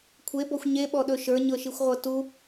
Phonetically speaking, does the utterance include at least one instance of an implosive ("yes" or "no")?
yes